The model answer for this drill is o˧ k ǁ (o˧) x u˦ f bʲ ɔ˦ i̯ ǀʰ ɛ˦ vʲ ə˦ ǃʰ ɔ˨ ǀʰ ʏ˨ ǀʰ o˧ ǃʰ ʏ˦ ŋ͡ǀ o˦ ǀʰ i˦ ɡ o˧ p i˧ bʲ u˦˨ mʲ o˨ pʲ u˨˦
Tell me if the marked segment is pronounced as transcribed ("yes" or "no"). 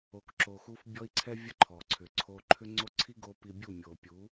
yes